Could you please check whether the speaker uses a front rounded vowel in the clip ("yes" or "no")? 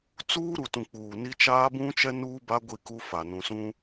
no